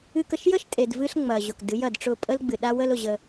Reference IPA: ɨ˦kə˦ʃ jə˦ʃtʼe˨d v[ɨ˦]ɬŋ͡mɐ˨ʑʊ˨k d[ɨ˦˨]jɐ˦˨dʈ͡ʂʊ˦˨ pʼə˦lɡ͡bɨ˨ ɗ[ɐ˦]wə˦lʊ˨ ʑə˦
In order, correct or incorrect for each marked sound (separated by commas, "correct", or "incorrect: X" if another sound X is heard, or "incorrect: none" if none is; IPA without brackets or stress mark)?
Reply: correct, incorrect: ɨ˨˦, incorrect: a˦